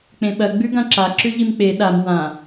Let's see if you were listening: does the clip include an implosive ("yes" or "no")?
yes